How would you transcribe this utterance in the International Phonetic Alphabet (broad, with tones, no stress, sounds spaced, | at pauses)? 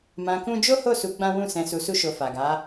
m ã˧ k ũ˦ d͡ʒ o˦ h o˦˨ s u˧ ɡ͡b ã˦ w ũ˦˨ s ɛ̃˧ s u˧ s u˦ ʃ o˧ f a˨ ɡ a˨˦